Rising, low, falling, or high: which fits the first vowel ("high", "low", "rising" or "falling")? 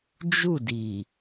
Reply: falling